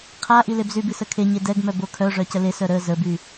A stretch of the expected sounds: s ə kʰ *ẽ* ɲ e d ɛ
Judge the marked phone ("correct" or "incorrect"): incorrect